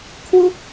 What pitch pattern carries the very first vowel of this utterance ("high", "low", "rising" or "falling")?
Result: falling